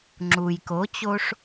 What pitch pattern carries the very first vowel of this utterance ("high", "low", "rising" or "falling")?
low